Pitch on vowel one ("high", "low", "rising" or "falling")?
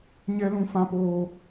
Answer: high